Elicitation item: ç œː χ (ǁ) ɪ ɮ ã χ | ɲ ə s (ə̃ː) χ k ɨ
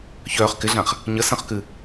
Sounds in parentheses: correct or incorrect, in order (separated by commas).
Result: incorrect, incorrect